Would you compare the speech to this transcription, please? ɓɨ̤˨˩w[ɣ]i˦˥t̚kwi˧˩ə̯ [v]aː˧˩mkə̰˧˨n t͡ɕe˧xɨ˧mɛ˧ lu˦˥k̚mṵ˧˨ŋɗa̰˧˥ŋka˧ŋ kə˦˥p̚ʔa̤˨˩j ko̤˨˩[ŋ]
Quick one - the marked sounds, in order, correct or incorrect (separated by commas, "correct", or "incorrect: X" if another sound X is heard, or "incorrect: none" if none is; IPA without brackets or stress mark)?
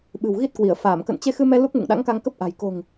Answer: correct, incorrect: f, correct